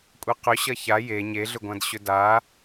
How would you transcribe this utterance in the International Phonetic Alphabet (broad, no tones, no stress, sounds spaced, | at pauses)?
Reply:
kʷʼ e q ʏ ɕ ɐ ç a j e ɲ e ɮ ʏ ɡʷ ã d ɕ ʏ d a